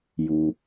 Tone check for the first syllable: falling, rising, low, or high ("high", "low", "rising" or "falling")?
low